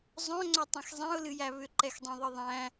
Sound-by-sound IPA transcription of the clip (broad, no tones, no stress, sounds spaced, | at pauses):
zˤ œ̃ ŋ͡ǀ œ tˤ ɛ̃ x zˤ ɛ̃ ʊ̯ l ɨ j æ β ʏ ǃ ɛ x dˤ ɛ̃ ðˤ ɨ ðˤ æ̃